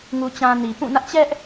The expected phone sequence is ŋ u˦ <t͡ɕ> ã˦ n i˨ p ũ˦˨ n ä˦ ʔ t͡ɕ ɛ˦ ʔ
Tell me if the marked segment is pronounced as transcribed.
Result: yes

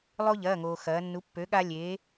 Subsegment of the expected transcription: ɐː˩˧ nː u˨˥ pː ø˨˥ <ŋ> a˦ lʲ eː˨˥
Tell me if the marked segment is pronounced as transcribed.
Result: no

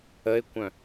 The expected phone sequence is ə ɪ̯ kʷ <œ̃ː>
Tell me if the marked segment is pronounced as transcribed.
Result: no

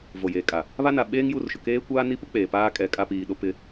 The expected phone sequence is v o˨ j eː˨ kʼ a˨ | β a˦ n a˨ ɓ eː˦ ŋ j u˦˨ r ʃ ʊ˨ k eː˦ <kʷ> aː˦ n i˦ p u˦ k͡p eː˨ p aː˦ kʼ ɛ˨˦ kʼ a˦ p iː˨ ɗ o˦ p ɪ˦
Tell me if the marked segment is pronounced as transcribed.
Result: yes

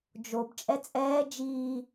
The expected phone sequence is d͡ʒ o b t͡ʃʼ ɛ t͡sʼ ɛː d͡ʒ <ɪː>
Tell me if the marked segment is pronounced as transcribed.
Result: no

